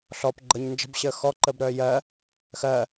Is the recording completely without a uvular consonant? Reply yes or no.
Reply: yes